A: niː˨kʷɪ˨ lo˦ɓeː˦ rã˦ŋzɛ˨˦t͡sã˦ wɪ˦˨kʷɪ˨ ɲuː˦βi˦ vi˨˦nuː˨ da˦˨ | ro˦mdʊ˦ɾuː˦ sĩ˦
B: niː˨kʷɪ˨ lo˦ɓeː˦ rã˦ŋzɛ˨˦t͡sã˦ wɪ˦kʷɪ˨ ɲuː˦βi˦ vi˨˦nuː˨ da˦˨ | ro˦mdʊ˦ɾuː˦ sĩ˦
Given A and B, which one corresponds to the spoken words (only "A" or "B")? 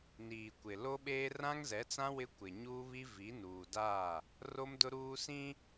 B